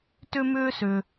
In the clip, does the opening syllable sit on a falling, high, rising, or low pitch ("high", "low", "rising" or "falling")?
high